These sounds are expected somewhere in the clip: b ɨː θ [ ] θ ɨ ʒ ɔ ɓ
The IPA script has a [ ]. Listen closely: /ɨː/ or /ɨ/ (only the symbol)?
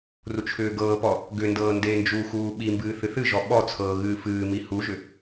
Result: ɨ